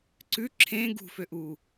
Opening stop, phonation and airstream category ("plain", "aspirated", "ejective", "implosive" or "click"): click